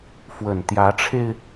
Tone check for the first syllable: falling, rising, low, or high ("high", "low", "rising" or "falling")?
low